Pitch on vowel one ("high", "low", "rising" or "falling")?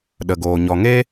low